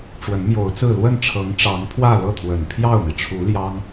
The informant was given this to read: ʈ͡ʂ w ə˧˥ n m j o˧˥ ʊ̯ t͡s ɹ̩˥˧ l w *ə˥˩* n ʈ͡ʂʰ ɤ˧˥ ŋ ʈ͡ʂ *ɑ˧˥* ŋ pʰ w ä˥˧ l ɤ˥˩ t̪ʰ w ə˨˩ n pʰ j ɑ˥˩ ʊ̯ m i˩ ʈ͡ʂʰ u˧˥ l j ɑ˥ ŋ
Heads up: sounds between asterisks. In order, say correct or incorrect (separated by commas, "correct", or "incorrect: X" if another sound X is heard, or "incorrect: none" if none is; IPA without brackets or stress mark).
correct, correct